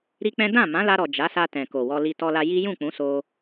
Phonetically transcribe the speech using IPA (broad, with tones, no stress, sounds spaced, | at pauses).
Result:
ɾ i˦ k͡p ɛ̃˦ d ã˦˨ m ã˨˦ l a˧ ɾ ɔ˨ d͡ʒ a˨˦ s a˧ t ɛ̃˨ k o˨ w ɔ˧ l i˧ t ɔ˧ l a˧ j i˦ j ũ˦˨ k͡p ũ˨˦ s o˧